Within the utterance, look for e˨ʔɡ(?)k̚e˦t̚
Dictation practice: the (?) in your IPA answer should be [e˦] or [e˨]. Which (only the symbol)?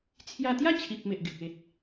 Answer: e˨